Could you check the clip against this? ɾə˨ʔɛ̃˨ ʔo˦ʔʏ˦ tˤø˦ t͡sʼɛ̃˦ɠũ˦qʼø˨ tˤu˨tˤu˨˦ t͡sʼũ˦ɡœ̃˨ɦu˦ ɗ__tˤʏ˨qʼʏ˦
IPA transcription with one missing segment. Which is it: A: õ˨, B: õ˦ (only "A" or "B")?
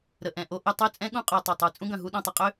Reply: A